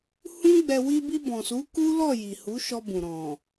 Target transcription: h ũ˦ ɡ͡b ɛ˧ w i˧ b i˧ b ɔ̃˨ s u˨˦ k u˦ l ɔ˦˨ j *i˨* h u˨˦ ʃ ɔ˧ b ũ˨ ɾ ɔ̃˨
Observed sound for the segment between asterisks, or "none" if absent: i˨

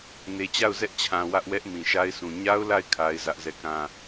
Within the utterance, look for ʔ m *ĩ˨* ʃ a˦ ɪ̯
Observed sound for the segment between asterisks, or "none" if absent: ĩ˨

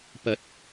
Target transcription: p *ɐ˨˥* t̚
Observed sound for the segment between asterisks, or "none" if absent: ɐ˨˥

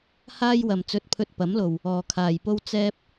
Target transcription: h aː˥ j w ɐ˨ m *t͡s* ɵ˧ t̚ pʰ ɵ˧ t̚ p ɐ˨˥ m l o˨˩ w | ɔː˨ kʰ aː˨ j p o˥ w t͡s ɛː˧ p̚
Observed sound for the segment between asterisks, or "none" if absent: t͡s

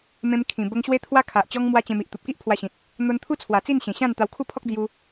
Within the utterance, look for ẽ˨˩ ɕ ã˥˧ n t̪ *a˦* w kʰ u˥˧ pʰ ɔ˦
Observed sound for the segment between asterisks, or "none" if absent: a˧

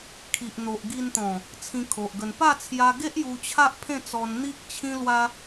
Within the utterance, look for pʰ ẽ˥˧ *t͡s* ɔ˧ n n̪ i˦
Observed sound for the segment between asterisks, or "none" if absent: t͡s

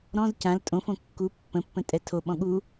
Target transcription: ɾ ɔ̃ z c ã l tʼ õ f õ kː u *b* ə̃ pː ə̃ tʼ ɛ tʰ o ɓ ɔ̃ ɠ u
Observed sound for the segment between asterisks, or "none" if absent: pː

